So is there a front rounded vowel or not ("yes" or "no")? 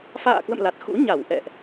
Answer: no